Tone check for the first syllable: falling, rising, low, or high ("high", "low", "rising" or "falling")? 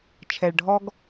low